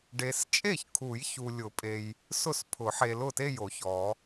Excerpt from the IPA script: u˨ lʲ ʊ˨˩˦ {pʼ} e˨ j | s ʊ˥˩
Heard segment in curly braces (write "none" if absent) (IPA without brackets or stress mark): pʼ